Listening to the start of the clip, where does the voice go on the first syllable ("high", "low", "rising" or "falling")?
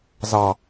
low